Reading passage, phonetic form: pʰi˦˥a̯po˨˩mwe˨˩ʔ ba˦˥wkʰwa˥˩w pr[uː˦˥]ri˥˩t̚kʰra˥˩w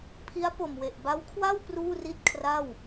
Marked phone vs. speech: incorrect: uː˥˩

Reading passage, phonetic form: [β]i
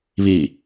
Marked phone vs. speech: correct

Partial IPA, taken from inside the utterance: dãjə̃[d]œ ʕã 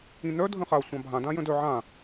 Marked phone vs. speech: correct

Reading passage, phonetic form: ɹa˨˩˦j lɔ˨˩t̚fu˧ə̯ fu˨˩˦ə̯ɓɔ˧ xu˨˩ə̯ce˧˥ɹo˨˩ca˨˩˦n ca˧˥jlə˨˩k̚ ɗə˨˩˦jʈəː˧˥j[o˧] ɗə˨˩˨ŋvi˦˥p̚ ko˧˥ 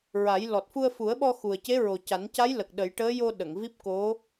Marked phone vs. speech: correct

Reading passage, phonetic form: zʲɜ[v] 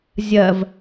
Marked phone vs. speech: correct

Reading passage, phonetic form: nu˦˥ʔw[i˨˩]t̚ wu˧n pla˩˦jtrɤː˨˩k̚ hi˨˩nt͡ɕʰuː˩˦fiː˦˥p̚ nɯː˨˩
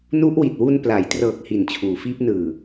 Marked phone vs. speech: correct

